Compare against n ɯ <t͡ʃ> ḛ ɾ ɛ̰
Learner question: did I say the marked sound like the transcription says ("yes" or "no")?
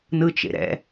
yes